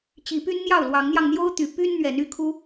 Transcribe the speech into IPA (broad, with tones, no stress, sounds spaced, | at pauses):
t͡ɕ i˨˦ p y˦ n n̪ j ɑ˥˨ ʊ̯ l w ɑ˨˦ ŋ n̪ j ɑ˧ ŋ n̪ j o˦ ʊ̯ t̪ y˨˦ p y˦ n n̪ ɥ ɛ˨˦ n y˥˨ kʰ u˦